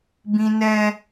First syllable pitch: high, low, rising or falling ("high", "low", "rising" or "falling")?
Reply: high